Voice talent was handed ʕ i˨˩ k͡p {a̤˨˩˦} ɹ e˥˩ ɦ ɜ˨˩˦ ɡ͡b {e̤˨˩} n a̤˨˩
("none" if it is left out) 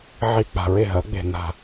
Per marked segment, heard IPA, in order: a̤˨˩, e̤˨˩

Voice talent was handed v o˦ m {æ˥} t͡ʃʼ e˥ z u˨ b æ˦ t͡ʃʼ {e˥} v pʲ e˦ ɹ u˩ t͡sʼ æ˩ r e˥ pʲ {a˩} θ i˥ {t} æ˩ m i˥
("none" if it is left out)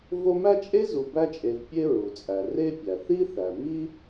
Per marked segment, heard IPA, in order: æ˥, e˨, æ˩, θ

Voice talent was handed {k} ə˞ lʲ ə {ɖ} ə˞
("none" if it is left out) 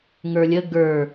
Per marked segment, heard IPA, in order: ŋ, ɡ

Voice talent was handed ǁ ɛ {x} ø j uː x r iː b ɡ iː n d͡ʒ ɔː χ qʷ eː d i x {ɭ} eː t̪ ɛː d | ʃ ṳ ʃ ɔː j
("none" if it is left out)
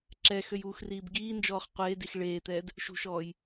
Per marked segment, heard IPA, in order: x, ɭ

